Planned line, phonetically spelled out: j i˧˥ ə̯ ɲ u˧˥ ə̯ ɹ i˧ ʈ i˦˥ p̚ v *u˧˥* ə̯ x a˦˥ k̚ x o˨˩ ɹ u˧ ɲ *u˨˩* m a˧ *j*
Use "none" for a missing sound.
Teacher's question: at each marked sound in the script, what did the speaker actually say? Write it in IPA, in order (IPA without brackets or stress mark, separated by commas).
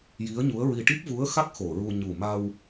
u˧˥, u˨˩, w